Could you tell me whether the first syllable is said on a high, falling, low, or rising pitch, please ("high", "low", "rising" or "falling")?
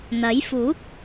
rising